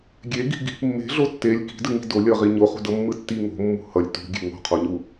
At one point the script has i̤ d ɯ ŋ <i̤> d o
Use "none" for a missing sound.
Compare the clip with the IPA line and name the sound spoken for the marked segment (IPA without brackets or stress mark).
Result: i̤